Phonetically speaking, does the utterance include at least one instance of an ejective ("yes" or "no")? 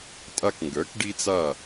yes